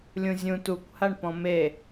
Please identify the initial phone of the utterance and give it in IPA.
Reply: lʲ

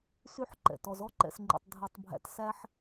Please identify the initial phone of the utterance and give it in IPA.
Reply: s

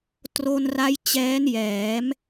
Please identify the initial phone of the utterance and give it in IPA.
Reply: t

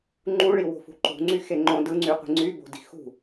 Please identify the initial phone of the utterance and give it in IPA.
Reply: ŋ͡ǃ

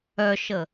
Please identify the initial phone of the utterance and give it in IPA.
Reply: œ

